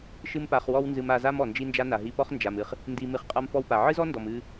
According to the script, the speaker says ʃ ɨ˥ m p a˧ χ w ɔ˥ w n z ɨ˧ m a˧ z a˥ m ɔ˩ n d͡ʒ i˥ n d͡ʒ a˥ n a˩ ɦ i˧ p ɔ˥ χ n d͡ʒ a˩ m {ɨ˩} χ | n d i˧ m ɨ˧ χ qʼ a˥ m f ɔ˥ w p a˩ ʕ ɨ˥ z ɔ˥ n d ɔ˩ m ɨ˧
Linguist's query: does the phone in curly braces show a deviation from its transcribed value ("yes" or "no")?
no